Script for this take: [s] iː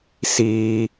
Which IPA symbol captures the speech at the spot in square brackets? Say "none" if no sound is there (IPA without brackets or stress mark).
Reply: s